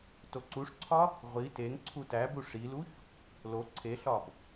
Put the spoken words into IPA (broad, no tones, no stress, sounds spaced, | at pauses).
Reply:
t o ǀ u ʂ ǀʰ ɒ | ʁʷ i t e ŋ ǀʰ u t æ b u ʂ i l u ç | l o ǀʰ e ɬ ɒ b